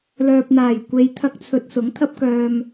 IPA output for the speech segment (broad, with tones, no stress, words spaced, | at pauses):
lœː˨p̚n̪aː˨˩jkʷe˨jt̪ʰɐ˧k̚ t͡sʰɵ˧t̚sʊ˨˥ŋt̪ʰɐ˥p̚kœː˧m